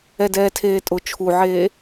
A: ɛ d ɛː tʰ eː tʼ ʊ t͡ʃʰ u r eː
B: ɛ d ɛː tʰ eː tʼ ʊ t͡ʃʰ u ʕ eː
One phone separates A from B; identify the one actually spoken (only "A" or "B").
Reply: B